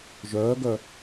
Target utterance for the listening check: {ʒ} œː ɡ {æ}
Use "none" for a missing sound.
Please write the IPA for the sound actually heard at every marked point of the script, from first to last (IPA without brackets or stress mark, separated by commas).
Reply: ʒ, œ